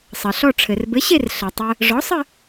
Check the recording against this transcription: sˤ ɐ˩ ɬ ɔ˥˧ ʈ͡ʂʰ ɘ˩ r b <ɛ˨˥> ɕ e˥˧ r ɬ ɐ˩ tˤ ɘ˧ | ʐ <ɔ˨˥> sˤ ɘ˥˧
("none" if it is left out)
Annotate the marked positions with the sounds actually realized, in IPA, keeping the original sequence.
ɘ˨˥, ɔ˨˥

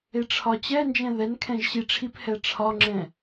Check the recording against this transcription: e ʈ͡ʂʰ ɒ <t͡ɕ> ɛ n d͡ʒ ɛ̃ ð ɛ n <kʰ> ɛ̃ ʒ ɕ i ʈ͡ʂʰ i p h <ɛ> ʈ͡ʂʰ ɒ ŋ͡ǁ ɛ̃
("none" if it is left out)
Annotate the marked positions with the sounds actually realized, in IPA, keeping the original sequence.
t͡ɕ, kʰ, ɛ

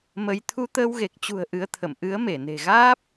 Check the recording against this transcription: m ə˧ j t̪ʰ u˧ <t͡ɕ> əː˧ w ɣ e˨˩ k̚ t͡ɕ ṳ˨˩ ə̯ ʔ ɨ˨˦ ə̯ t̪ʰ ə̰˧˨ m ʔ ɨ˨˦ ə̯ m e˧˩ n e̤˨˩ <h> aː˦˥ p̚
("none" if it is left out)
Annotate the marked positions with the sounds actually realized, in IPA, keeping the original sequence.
t̪, ɣ

